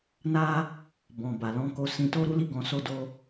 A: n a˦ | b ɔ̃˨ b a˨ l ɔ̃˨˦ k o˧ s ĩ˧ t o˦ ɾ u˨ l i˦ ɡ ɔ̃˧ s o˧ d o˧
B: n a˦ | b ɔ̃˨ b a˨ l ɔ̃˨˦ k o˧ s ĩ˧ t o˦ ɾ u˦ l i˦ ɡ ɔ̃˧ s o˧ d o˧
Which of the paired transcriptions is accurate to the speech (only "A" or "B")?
B